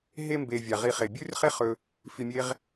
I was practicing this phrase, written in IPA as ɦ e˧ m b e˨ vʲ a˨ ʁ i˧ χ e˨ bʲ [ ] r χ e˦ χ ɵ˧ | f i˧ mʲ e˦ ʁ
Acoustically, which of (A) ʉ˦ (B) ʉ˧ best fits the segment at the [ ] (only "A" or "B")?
A